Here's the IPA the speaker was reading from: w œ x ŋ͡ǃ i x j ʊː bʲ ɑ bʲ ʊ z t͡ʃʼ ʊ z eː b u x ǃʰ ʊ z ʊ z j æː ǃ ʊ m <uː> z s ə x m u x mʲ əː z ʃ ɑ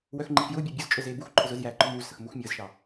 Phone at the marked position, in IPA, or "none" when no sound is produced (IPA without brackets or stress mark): uː